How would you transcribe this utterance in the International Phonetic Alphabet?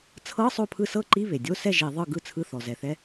t͡sʰɤ˧˥˧ sˤo˥˩pʰɯ˥˩ sɤ˥˩ǃi˧˥˧ βe˩dʲo˧˥˧sɛ˥˩ ʒi˧˩˧ðˤɯ˥˩ ɡɯ˥˩t͡sʰɯ˧˥˧ θɔ˩ zɛ˩θɛ˧˥˧

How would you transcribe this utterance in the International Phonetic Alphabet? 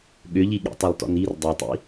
ɠʏʎiɠḭ tˤɤlˠtɔ̰nir dˤotˤḭ

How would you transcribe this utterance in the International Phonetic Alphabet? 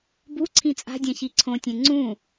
bu ǀʰĩt͡sʼa̤dʲɛ̃ çiǀʰõtʲẽ ŋ͡ǀũ

